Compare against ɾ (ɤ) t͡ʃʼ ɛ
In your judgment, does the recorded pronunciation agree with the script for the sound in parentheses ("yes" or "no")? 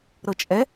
yes